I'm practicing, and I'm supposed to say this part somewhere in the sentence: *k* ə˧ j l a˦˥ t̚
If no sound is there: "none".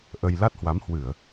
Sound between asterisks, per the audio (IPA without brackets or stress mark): ʔ